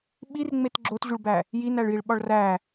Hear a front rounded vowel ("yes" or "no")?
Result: no